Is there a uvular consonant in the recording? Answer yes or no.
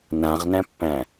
yes